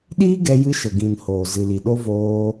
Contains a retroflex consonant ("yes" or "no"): no